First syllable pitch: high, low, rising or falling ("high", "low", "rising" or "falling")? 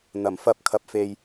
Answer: low